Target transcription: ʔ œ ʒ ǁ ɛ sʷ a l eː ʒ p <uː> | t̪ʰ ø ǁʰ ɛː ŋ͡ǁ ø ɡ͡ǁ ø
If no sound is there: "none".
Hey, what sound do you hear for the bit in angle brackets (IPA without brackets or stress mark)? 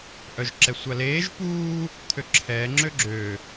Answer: uː